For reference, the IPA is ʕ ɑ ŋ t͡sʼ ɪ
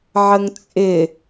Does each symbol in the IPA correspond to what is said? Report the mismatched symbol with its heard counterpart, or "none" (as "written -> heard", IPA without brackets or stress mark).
ɑ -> ə